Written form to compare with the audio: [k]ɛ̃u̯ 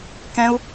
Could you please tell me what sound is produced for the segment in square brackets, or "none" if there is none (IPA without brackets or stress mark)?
k